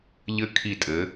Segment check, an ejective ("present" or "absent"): present